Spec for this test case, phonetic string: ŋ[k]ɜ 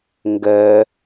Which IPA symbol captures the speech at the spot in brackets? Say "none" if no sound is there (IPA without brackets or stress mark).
ɡ